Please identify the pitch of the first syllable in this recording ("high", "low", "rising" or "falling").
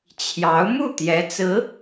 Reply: rising